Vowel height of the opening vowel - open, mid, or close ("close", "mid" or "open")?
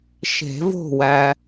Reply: mid